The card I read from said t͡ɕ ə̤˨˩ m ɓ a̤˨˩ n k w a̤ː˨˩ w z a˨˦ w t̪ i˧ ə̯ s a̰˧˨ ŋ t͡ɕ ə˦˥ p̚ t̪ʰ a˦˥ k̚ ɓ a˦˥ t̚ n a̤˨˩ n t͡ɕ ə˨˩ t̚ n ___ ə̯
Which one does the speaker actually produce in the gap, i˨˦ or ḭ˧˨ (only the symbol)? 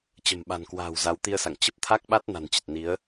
i˨˦